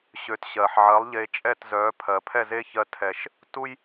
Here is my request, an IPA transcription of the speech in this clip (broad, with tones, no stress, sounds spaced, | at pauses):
ɕ ø˩˥ t ɕ ɜ˩ ħ ʕ ɜ˩˥ lˠ ʎ e˧ t͡ʃʼ ɛ˥˩ t z œ˩˥ pʰ ɜ˩ pʰ ɛ˥˩ z e˥ ç ɜ˧ tʰ ɛ˩ ʃ | t u˥ j